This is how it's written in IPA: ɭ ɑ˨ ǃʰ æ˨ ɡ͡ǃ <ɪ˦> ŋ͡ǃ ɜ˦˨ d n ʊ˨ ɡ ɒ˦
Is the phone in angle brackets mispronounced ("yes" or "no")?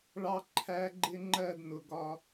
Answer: no